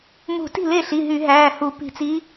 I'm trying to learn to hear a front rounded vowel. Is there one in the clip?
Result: yes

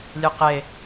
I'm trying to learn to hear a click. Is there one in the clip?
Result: no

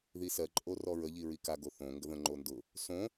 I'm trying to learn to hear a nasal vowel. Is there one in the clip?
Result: yes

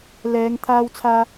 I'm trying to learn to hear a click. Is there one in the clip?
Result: no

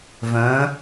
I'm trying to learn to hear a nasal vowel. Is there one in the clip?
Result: yes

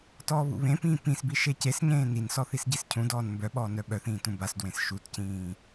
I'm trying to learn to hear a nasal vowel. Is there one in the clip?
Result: yes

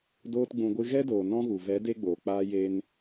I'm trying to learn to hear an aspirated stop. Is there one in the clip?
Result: no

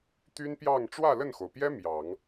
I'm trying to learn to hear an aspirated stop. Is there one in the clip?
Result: no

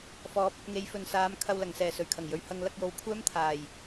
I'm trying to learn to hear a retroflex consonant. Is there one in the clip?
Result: no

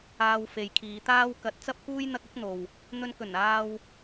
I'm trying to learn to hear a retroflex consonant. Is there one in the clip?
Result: no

